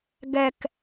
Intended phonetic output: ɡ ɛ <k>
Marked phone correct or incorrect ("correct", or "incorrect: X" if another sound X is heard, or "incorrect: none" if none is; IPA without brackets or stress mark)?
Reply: correct